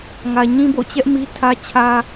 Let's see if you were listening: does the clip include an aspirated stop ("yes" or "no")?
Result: yes